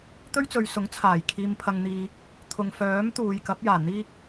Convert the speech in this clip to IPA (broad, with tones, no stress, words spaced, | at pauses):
t̪ɵ˥ɥt͡sɵ˨ɥsʊ˨˥ŋt͡sʰaː˨˩j kʰiː˨mpʰɐ˨ŋn̪iː˨ | t̪ʰʊ˨ŋfœː˨˥mt̪uː˨j kɐ˨˥p̚jaː˨˩ n̪iː˥k̚